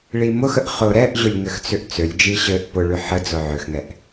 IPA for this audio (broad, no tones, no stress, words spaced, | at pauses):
ɭimʊxəʔ χʊ ɾɛʔʑʊlʲ ŋɘxt͡sʏʔt͡sølʲd͡ʒi ɕɘʔ pʊɭʏ ħəd͡zʊ ʕøxŋɛʔ